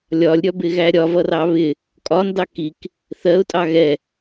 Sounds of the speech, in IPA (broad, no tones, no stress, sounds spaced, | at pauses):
lʲ ɒ lʲ ɾʲ ɒ b ɪ ɣ æ ɾʲ ɒ v ʌ r ɑ β ɪ | kʼ ɒ n d ɑ k i k | θ ɜ ʊ̯ tʼ ɑ ɣ ɛ